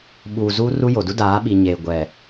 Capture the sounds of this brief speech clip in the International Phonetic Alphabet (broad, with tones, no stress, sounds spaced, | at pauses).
ɓ uː˨ z u˦ r u˦ j o˨ d u˦ d aː˨˦ ɓ i˨ ɲ eː˨ ɡʷ ɛ˨